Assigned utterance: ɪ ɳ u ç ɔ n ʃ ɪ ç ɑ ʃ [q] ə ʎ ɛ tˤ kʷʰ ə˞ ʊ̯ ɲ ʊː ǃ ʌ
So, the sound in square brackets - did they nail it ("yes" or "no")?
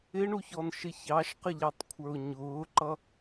yes